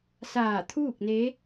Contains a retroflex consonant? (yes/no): no